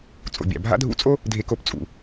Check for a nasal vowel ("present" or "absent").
absent